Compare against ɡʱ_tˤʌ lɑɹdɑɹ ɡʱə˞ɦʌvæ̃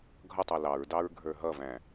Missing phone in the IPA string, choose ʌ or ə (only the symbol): ʌ